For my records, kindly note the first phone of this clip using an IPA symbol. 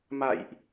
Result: m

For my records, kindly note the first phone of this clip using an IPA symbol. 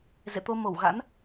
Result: z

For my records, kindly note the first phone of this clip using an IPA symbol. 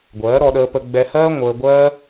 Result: ɡʷ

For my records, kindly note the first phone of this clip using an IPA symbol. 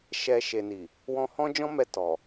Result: ʃ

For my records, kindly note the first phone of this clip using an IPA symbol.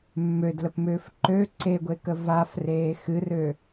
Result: mː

